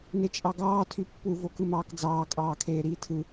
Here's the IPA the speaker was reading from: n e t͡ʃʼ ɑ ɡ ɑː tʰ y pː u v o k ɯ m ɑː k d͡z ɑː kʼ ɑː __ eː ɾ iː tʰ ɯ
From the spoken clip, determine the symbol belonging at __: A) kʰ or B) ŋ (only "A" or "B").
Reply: A